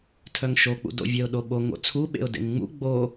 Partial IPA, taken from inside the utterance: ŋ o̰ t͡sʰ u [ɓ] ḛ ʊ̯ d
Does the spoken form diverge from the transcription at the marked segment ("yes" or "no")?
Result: no